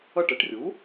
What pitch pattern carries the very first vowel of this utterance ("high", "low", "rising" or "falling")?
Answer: falling